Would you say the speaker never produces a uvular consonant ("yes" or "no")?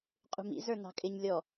no